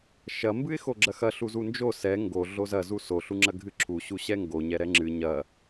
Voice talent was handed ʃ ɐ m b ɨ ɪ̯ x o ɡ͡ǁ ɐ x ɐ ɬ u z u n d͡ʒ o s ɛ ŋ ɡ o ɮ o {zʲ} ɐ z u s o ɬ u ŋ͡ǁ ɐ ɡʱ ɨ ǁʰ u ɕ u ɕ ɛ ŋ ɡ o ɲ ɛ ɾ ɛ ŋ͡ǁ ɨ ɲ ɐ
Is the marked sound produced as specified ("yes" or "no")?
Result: no